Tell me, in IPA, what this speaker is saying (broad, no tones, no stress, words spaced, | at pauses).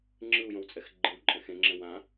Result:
ŋ͡ǁɯu̯jõwt͡sʼɛx ɡ͡ǃɯwǃʼɛ̃ xẽŋ͡ǁɛ̃ wã